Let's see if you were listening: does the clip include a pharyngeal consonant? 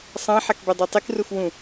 yes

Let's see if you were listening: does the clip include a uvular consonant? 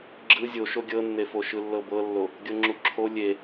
no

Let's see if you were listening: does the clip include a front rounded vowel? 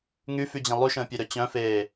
yes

